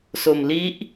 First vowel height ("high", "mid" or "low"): mid